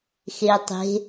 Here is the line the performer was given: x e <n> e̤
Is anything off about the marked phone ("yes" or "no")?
yes